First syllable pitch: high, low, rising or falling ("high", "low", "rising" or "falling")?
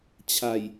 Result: low